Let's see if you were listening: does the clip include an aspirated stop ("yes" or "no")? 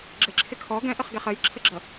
yes